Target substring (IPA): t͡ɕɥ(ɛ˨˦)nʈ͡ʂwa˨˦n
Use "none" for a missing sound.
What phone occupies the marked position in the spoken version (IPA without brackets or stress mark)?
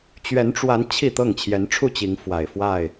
ɛ˨˦